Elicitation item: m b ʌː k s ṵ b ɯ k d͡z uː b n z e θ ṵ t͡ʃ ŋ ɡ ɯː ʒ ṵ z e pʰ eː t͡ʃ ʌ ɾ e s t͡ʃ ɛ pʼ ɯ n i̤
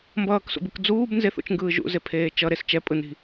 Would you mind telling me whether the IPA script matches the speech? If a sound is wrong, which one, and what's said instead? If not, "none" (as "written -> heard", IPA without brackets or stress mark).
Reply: none